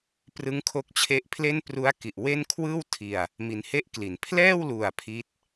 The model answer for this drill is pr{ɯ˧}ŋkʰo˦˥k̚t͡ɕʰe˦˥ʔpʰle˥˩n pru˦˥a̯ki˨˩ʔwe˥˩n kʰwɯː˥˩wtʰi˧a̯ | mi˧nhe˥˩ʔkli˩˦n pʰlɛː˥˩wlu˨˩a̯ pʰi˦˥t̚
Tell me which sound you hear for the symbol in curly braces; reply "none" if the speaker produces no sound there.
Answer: ɯ˦˥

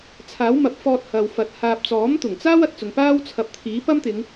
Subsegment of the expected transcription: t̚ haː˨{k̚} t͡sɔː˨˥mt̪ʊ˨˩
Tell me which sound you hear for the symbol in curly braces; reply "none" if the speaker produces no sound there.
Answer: p̚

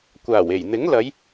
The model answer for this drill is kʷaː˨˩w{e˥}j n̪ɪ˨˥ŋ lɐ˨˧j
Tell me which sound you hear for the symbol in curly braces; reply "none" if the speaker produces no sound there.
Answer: e˨˩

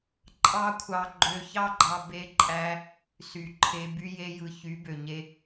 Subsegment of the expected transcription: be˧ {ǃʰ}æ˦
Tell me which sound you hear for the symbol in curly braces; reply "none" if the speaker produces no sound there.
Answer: ǃʼ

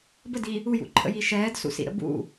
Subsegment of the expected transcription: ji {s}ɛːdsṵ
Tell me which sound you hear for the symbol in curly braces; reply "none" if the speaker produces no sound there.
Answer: ʃ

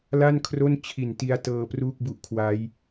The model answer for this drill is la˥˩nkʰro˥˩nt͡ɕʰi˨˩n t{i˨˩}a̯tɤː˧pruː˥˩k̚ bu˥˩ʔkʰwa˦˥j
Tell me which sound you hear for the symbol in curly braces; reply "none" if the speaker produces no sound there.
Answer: i˦˥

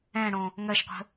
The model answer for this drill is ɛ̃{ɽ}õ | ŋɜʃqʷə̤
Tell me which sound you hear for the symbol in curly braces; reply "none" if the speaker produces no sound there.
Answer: ɽ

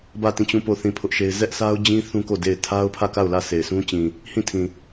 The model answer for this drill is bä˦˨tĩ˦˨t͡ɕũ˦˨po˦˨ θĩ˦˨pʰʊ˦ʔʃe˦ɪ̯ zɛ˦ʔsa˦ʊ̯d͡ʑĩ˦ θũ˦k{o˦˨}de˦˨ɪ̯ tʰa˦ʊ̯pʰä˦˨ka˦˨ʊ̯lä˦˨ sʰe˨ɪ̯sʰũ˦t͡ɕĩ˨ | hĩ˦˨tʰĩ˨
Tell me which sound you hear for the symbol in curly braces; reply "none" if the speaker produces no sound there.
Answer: o˦˨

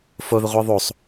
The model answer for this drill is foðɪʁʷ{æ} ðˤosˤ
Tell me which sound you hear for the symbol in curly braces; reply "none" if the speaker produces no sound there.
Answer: æ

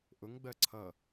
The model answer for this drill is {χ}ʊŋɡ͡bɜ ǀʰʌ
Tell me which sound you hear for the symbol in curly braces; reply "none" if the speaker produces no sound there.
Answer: ʔ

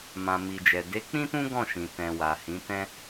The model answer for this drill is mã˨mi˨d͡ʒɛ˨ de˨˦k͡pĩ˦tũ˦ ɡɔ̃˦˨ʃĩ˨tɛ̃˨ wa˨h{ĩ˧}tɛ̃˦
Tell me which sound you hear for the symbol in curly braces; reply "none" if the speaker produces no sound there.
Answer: ĩ˨˦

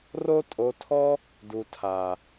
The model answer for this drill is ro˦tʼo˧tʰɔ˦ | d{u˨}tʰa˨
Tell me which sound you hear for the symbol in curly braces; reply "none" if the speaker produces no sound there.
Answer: u˨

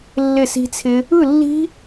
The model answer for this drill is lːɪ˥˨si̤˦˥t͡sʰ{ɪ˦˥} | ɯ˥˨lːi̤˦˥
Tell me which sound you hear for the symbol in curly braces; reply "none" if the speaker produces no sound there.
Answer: ɪ˦˥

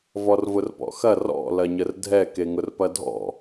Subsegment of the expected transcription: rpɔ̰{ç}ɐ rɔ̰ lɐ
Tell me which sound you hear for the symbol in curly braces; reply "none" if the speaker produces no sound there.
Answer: x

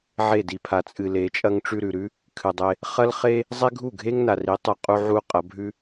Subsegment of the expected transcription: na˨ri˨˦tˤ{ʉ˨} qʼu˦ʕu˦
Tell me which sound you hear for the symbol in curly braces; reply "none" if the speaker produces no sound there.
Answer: ɨ˨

